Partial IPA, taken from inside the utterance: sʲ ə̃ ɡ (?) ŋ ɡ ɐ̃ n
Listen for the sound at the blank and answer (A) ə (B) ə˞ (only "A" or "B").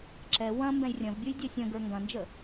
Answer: B